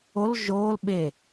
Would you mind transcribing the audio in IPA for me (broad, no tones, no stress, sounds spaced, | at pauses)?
o l ʒ oː l ɓ e